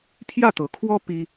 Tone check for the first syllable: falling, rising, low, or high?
falling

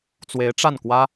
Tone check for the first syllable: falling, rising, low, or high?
rising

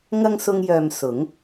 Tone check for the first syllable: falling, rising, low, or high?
high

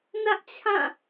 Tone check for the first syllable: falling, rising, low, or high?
high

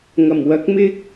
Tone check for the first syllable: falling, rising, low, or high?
low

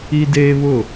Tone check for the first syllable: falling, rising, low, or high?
high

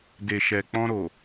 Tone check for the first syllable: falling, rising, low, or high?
low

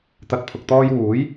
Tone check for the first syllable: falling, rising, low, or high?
rising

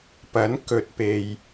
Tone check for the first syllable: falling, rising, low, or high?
rising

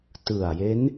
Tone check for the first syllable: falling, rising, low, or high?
low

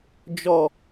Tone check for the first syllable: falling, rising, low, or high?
low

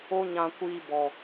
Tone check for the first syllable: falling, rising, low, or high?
high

